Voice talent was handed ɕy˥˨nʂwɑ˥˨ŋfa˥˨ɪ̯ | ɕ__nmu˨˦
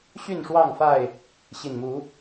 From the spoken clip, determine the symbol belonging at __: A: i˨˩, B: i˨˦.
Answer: A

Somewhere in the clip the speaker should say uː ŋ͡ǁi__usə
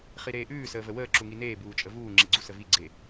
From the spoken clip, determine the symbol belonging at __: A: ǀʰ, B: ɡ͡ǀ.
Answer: B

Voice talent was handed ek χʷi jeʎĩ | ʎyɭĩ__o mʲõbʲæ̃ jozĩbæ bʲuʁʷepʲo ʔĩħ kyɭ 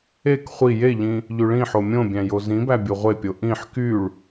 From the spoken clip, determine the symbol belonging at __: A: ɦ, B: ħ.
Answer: B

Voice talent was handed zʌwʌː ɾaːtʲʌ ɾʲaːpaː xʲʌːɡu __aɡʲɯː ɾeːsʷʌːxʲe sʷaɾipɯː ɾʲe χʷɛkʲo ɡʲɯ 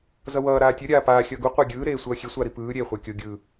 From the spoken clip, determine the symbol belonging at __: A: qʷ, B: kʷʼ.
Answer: A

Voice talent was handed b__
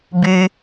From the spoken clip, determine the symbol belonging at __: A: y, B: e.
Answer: A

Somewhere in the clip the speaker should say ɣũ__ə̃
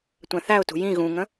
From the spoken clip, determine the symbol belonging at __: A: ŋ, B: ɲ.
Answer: A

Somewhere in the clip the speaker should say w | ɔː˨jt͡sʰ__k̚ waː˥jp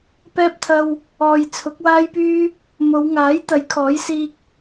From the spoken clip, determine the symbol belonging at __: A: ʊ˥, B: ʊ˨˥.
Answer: B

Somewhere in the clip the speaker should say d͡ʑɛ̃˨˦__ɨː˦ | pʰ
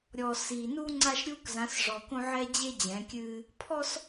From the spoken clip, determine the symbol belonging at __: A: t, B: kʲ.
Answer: B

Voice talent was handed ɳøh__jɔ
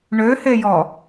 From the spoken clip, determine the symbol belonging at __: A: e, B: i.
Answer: A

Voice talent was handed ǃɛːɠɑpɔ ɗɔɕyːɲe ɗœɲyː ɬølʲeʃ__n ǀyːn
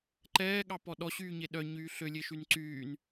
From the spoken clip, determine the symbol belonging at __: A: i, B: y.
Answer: B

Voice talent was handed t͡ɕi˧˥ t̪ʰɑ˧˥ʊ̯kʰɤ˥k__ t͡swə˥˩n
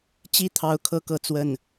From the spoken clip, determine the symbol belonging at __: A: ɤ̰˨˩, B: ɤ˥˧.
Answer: B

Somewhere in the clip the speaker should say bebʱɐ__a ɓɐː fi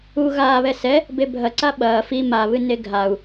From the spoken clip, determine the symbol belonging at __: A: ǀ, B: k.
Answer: A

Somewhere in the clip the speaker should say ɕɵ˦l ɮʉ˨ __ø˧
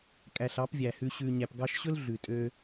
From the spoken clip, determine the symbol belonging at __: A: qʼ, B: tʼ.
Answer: B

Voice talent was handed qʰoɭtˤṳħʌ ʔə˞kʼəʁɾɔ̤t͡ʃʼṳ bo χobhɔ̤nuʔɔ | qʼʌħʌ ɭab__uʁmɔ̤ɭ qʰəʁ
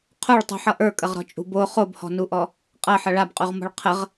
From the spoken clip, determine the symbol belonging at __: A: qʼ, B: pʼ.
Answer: A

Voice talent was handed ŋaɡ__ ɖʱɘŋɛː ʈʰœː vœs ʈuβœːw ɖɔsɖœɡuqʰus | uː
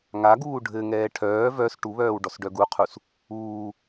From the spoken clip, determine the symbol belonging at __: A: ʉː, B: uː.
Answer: B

